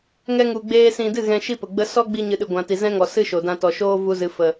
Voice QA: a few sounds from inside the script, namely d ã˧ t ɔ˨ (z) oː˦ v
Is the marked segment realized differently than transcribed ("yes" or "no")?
yes